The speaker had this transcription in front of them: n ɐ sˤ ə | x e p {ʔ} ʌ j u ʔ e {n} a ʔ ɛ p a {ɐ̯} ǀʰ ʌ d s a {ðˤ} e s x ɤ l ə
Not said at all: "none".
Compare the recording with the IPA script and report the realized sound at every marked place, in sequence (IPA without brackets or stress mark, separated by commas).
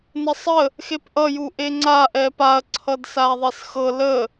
ʔ, ŋ͡ǀ, ɐ̯, ðˤ